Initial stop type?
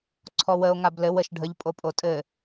click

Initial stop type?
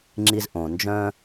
click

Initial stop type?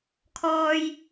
aspirated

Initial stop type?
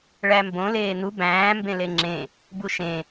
plain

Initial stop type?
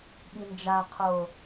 implosive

